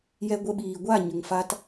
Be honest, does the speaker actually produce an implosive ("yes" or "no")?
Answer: yes